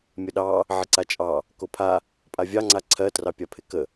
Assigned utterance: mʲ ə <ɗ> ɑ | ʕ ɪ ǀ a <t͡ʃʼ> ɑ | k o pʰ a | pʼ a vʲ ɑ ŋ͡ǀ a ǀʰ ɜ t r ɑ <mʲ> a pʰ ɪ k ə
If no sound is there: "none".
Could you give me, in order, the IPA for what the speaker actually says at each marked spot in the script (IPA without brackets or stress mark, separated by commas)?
ɗ, t͡ʃʼ, pʲ